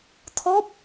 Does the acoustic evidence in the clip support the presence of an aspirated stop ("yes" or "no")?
yes